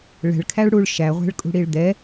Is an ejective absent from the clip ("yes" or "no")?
no